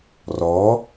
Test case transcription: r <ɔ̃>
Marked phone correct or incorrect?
incorrect